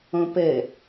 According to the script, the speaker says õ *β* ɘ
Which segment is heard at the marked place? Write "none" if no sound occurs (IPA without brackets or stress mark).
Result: p